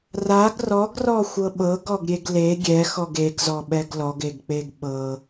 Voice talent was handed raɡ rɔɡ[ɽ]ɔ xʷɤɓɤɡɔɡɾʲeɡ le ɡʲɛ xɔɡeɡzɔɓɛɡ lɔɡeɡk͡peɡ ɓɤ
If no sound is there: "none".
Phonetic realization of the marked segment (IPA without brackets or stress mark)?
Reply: r